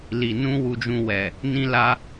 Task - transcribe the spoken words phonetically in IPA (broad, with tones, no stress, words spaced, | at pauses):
li˨nũ˧ wu˧d͡ʒũ˧wɛ˨ | nĩ˧la˧